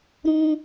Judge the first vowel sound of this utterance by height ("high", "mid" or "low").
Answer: high